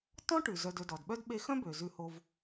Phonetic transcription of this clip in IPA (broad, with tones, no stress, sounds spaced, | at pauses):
t ɔ̃˥ ʈ ʉ˩ z œ˨ d ɵ˨ d ɔ˩ d ɓ œ˥ d ɓ e˦ x œ̃˥ b ø˩ z ʉ˨ h o˨ v